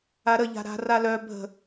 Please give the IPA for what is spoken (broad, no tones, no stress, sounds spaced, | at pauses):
a ɾ ə ʎ a̤ ɾ a̤ r a l œ bʱ ə̤